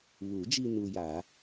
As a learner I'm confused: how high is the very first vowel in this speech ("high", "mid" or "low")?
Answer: high